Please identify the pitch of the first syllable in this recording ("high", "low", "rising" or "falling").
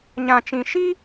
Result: low